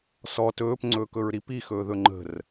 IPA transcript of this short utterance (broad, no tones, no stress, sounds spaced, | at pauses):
s ɔ t ɵː p ŋ͡ǀ ɵː k ɵ ɹ ɾ i p i x ɵː ð ɵ ŋ͡ǃ ə̤ r